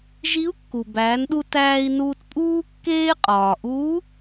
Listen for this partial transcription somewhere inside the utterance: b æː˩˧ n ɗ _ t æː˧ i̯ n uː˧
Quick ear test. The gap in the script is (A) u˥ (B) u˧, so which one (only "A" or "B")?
B